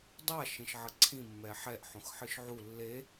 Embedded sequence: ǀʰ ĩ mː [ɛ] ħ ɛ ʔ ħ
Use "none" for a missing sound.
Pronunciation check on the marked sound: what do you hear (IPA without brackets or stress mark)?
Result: ɛ